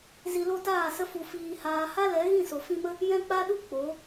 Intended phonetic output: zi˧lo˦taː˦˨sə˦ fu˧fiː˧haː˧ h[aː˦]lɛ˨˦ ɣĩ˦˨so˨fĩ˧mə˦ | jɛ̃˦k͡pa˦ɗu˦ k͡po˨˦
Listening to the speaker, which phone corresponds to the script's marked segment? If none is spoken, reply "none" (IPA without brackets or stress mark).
a˦